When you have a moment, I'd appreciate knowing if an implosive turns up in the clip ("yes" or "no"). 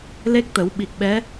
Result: yes